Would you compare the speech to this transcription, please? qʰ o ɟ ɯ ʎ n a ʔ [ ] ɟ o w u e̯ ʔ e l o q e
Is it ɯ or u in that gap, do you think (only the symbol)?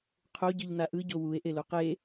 ɯ